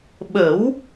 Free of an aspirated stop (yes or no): yes